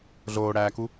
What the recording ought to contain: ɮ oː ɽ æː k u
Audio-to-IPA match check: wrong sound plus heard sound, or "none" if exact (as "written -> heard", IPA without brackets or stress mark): none